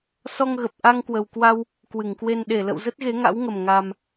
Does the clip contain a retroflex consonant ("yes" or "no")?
no